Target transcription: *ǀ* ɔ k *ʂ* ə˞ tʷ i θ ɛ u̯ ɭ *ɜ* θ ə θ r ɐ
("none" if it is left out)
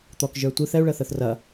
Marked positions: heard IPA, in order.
t̪, ʒ, ɜ

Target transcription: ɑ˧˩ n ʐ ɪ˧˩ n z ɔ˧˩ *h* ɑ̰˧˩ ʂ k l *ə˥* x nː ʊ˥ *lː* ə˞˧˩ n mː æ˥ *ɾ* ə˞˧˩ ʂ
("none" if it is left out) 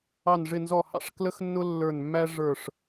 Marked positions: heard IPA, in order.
h, ə˥, lː, ʐ

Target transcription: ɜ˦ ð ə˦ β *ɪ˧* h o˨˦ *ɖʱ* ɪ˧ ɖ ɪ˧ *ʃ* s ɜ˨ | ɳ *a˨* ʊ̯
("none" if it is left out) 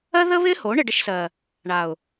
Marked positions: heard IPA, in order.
ɪ˦, ɳ, ʃ, a˨

